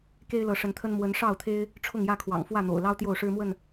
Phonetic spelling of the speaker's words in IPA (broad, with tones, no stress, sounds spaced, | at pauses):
k e˦ ɪ̯ l ɤ˨˦ ʂ ə˨˦ n t̪ʰ ə˦ n m w ə˨˦ n ʂ ɑ˥˨ ʊ̯ t̪ʰ e˦ ɪ̯ | ʈ͡ʂʰ ʊ˥˨ ŋ j ä˥˨ kʰ w ɑ̰˨˩ ŋ f w ä˥˨ n̪ o̰˨˩ ʊ̯ l ɑ˦ ʊ̯ t̪ j o˥˨ ʊ̯ ʂ ɻ̩˦ m w ə˥˨ n